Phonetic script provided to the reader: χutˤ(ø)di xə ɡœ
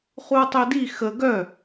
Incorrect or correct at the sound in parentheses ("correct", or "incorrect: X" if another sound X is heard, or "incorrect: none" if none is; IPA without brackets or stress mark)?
correct